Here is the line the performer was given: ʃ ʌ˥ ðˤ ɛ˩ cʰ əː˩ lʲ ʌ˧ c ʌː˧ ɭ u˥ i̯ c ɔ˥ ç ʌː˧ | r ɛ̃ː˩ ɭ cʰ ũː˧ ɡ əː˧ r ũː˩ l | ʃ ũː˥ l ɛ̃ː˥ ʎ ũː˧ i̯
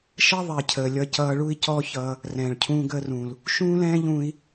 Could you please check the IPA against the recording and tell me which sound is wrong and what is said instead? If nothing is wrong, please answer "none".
none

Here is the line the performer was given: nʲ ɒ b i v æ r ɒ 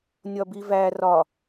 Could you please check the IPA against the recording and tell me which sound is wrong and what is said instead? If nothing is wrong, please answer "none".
none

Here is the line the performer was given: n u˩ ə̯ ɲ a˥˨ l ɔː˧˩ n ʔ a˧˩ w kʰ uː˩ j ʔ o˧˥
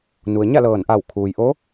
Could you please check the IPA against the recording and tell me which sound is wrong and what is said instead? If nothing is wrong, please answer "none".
ɔː˧˩ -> ɤː˧˩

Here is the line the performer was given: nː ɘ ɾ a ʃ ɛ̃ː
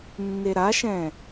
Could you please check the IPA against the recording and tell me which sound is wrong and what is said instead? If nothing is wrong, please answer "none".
ɘ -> e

